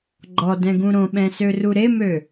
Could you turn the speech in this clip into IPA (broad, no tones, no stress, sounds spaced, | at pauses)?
ɡ͡ǃ ɔ d ɛ̃ ɡ ũ ɾ õ ɓ ɛ̃ s ø r u ɾ e m ø